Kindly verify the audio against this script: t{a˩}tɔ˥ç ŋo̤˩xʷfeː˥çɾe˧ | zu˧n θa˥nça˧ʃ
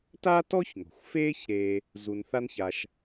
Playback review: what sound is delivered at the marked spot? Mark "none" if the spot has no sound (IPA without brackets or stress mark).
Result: a˥